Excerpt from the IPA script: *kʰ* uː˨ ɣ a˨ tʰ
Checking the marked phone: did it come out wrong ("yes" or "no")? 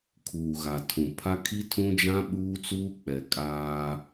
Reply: no